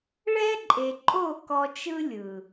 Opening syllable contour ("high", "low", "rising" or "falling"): high